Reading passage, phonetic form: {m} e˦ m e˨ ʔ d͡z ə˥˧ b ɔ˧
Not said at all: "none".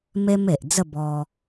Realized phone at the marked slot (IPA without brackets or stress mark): m